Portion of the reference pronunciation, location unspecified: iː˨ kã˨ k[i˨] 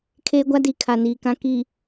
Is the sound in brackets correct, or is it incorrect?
correct